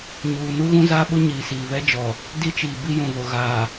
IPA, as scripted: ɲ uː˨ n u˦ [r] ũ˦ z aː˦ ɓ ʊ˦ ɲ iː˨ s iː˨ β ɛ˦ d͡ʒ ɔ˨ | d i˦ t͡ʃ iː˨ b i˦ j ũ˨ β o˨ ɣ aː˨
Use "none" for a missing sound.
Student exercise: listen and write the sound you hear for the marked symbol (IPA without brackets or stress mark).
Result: ɣ